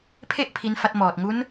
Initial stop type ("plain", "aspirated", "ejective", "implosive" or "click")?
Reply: aspirated